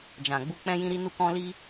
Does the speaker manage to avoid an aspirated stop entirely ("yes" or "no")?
yes